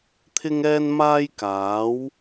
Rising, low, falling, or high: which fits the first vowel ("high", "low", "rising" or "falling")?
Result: high